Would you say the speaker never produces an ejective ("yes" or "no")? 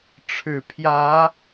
yes